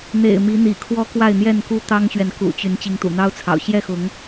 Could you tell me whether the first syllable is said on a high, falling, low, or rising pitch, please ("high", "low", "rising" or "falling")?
low